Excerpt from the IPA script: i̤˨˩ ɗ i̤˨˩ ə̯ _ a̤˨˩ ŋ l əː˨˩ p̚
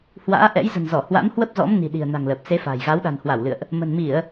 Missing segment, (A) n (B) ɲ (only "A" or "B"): A